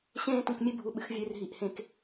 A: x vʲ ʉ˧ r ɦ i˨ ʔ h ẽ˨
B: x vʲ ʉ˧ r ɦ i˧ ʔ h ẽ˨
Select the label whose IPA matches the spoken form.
A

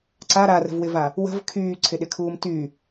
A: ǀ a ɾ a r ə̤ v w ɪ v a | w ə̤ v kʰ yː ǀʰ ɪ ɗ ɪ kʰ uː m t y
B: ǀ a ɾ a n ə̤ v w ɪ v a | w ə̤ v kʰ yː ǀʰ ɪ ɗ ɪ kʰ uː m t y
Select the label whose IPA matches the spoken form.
A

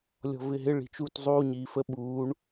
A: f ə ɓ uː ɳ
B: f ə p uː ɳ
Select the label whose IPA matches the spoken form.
A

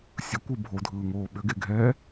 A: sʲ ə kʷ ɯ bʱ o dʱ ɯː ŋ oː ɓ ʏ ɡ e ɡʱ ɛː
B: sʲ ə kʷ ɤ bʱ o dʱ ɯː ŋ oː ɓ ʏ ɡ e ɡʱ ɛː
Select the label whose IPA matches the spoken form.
A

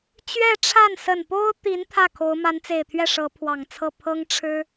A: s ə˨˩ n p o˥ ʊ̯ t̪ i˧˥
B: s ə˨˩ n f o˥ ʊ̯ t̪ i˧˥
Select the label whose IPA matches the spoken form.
A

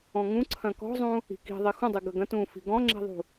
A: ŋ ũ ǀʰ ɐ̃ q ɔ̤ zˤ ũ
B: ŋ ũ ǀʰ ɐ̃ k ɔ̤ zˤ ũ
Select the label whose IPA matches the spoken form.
B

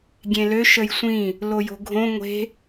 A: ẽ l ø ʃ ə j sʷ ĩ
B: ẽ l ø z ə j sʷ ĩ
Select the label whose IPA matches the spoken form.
A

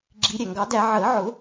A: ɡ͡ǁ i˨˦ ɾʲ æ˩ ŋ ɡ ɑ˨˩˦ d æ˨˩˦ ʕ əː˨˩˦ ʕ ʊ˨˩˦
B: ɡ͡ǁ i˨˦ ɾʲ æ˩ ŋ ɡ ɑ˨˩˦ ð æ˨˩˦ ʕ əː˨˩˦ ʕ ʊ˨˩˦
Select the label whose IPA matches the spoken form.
A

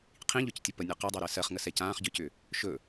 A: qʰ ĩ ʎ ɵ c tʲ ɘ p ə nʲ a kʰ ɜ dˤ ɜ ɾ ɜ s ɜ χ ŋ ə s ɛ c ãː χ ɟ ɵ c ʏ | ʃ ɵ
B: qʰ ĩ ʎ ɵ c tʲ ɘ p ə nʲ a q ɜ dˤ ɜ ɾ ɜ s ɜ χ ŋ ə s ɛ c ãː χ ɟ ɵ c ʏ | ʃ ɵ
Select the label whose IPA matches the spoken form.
B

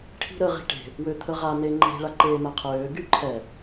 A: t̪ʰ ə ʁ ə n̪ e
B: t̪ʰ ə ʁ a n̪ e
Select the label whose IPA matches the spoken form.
B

